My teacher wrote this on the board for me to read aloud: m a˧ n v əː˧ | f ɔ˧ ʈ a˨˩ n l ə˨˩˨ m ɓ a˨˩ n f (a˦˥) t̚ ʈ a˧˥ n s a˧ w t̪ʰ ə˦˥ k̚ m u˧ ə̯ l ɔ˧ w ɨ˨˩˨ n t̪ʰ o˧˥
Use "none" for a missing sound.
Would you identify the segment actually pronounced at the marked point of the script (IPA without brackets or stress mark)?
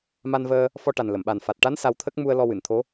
a˨˩